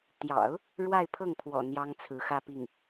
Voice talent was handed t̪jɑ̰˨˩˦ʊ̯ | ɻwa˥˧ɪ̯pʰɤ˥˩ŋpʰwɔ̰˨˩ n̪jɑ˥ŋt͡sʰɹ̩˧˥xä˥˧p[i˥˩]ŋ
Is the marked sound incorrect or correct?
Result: correct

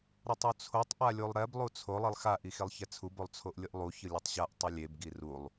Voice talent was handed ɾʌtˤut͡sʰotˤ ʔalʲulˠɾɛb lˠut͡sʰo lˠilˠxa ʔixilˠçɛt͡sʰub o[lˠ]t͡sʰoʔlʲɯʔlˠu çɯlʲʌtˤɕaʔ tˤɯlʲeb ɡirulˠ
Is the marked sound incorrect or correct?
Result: correct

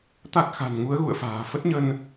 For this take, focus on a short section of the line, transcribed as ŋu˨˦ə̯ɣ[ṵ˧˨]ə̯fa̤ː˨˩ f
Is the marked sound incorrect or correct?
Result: correct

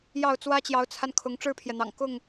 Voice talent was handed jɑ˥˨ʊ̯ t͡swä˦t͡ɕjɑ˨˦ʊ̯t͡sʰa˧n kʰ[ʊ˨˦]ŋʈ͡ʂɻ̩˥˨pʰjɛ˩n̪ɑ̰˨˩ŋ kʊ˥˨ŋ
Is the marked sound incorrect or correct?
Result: correct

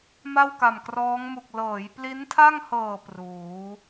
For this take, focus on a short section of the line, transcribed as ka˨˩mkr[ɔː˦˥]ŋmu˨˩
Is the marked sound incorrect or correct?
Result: correct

